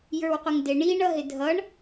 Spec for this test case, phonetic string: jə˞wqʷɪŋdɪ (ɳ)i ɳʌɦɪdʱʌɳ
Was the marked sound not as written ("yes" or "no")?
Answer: no